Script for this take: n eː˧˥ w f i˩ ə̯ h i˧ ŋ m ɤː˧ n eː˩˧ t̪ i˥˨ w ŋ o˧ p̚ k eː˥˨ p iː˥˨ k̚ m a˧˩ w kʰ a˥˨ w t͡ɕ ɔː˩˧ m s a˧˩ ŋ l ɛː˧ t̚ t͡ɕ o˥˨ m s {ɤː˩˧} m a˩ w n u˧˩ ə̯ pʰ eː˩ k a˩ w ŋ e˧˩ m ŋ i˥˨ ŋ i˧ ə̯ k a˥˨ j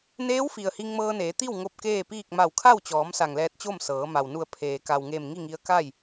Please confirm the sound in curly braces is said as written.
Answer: yes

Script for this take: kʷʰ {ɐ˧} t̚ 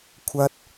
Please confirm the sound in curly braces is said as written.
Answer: no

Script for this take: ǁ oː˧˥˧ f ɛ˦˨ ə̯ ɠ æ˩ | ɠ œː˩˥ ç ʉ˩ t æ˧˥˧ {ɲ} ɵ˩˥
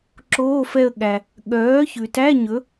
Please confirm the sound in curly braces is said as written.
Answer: yes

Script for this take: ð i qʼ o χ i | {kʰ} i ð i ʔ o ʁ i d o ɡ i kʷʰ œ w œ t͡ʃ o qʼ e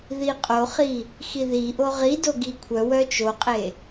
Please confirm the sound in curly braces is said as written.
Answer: no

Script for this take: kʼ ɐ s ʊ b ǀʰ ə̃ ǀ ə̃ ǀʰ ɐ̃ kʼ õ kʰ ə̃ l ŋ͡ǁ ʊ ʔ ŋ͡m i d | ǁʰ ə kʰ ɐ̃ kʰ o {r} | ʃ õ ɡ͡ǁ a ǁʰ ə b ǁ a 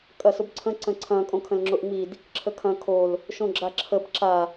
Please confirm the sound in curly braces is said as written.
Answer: no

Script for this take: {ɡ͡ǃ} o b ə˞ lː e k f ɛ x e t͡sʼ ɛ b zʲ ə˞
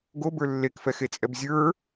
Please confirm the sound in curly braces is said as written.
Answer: no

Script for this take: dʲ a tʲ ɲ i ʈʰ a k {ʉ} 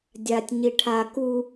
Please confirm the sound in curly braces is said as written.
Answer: no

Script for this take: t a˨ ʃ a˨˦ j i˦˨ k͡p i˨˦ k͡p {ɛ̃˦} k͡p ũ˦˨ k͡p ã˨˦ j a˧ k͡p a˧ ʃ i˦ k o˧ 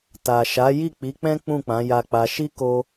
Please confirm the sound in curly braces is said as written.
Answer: yes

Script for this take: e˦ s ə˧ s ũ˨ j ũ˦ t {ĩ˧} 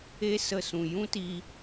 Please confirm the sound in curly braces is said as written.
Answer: no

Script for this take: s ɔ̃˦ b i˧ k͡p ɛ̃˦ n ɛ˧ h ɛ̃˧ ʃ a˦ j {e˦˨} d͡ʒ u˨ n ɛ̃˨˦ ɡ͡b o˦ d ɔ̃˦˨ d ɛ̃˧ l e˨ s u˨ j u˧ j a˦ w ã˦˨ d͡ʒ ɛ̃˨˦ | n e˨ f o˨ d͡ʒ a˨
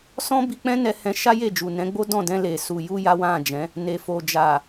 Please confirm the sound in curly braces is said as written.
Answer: yes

